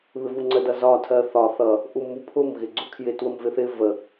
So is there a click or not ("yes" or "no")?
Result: yes